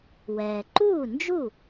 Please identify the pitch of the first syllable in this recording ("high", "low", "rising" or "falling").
low